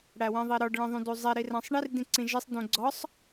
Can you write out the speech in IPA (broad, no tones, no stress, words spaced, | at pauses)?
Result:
ɽæwẽðˤiɾɒɖ ɭĩðˤũduzˤe ɾiræ̃sˤɳir dĩǀĩʒisˤ dũɡ͡ǀɒsˤ